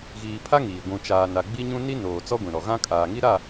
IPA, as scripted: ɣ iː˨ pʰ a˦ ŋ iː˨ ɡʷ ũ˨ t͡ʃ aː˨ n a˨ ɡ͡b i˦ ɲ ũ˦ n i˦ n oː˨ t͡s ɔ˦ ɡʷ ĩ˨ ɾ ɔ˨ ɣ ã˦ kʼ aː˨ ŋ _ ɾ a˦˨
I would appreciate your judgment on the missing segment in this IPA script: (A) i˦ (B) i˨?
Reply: A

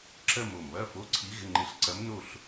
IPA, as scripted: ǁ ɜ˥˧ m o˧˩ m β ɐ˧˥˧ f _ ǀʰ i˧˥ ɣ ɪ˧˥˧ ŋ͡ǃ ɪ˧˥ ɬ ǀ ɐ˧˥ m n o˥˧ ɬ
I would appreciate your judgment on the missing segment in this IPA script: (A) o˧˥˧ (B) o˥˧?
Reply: A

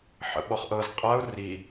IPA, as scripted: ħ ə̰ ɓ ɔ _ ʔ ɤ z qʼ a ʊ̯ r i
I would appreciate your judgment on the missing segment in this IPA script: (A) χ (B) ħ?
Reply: A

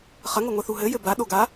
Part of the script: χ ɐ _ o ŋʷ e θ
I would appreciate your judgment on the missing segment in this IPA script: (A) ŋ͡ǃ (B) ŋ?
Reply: B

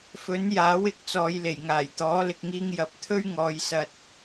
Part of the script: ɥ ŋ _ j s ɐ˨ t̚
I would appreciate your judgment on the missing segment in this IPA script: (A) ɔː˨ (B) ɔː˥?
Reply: A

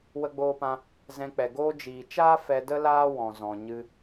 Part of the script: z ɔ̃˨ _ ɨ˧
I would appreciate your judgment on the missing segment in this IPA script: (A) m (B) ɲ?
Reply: B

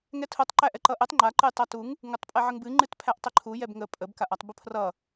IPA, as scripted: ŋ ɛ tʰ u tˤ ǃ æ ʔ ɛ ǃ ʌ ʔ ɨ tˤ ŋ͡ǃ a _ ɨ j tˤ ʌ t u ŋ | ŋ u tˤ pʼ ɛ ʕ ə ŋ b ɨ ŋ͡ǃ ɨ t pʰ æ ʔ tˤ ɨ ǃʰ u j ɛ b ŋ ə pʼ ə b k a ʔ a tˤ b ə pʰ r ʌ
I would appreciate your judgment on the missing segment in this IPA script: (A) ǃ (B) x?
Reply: A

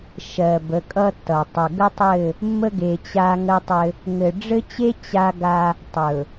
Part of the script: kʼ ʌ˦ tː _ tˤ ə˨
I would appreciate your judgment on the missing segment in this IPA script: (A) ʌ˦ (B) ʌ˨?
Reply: B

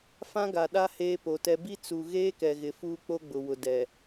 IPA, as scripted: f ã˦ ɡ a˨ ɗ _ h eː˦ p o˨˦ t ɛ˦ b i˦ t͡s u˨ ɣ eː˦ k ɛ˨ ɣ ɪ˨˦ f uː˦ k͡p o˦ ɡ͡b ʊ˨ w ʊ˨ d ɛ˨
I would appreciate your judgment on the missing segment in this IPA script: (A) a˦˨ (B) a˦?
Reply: B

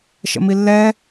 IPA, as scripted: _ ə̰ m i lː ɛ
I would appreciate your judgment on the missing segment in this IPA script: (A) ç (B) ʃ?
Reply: B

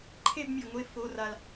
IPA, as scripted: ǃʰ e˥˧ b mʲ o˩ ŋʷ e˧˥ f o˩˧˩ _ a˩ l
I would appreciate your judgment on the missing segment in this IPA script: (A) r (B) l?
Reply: A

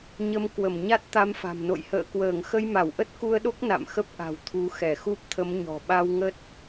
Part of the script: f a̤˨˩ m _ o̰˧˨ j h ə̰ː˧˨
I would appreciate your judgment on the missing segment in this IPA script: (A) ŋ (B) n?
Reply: B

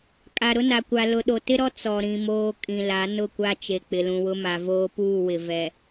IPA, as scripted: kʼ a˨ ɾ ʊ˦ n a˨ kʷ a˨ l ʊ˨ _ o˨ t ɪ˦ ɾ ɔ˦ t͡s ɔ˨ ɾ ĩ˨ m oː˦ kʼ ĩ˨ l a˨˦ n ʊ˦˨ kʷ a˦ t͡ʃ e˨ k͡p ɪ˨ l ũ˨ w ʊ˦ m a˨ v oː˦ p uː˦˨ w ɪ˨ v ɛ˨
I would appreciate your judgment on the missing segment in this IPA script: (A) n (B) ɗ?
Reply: B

